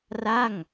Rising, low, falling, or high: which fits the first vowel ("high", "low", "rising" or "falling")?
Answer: falling